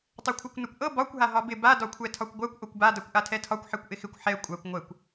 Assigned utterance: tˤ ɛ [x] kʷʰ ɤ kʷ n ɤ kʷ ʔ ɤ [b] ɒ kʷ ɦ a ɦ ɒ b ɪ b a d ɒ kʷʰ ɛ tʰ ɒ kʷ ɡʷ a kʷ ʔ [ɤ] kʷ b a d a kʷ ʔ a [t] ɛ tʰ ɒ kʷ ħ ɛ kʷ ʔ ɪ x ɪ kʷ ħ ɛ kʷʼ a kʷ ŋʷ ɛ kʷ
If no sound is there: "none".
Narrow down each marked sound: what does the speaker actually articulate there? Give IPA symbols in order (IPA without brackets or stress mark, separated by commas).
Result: none, b, o, tʰ